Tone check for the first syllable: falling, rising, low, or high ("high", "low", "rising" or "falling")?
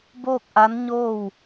falling